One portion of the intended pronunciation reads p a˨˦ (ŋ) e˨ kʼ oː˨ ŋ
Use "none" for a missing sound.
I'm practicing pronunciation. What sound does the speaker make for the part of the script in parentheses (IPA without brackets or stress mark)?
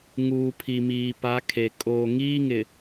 kʰ